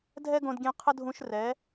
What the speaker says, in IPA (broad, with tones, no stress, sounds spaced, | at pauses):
dʱ ɛ˦ ɡ õ˧ d ɡʲ ẽ˧ qʰ ə˦ dʱ ũ˧ ʃ r ɛ˨˦